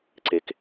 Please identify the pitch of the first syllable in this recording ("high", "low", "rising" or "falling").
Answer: high